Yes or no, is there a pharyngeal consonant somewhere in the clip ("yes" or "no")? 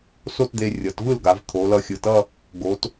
no